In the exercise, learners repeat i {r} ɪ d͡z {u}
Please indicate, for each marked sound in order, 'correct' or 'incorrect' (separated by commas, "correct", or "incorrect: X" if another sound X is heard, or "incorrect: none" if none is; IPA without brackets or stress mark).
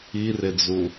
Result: correct, correct